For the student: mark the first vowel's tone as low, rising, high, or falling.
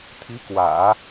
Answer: rising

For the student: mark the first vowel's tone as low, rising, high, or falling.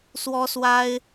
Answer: high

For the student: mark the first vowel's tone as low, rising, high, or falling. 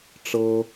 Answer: high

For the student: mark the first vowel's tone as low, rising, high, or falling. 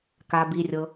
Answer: low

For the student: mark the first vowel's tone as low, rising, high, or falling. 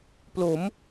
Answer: rising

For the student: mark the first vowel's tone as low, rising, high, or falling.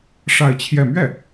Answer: falling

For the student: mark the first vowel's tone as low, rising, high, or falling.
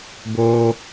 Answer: high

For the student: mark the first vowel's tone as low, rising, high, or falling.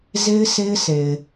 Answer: high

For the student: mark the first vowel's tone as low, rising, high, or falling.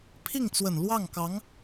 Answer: falling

